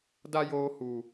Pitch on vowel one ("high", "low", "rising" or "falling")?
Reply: high